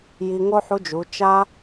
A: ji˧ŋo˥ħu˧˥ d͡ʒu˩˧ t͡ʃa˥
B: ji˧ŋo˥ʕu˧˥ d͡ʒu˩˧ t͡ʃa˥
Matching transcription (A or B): A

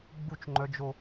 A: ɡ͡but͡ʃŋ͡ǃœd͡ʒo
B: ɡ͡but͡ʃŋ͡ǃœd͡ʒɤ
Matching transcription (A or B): A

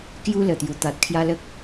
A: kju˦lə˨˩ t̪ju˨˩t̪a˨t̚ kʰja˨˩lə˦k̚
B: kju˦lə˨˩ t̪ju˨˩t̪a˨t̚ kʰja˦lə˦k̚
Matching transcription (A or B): B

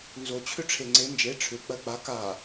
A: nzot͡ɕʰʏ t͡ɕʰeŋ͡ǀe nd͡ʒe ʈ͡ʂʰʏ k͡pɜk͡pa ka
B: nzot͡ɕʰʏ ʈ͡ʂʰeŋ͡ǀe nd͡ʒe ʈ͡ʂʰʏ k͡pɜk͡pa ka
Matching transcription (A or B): B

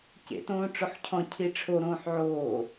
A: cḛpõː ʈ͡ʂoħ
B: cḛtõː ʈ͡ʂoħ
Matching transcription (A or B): B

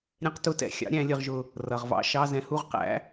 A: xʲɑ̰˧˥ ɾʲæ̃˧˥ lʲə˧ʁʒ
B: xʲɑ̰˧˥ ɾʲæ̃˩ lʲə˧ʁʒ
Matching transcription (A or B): A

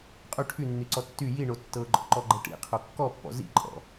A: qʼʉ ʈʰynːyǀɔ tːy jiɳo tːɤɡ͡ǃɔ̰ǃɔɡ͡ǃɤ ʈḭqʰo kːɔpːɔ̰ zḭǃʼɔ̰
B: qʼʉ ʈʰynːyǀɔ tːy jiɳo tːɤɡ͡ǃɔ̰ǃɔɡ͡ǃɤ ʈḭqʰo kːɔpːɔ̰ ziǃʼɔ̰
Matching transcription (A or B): A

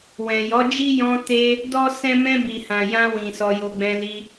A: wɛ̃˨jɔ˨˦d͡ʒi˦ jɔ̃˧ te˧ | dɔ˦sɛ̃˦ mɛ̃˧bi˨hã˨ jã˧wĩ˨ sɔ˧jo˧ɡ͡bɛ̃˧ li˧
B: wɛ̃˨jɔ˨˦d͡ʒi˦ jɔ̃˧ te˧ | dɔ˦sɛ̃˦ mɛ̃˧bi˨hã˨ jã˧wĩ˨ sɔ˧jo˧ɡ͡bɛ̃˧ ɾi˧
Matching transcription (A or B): A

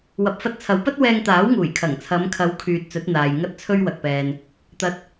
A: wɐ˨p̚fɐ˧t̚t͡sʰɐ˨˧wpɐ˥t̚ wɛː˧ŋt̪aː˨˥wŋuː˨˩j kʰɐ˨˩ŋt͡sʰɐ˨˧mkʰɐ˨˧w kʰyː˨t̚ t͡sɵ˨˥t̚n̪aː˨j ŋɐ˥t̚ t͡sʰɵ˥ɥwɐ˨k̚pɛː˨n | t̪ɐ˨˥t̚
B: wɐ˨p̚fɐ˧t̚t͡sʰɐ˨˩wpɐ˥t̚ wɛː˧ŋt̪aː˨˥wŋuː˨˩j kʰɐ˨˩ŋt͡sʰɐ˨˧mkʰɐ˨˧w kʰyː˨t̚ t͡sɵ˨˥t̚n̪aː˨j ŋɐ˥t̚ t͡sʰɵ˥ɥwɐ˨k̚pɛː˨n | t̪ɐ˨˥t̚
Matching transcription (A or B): A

